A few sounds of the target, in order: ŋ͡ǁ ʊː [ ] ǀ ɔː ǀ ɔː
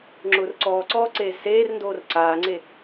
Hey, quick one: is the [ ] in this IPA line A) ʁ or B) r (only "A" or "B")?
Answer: B